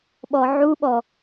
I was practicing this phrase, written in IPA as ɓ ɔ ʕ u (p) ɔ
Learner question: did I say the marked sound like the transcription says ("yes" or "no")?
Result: no